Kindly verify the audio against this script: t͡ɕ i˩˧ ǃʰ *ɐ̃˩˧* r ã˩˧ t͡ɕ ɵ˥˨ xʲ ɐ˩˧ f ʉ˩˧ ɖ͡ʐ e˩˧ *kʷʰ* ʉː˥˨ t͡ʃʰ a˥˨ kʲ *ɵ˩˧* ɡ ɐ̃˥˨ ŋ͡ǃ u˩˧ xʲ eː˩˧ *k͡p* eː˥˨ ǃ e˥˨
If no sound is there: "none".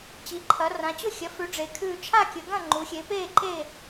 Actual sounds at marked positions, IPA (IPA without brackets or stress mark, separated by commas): ɐ˩˧, kʰ, ɵ˩˧, p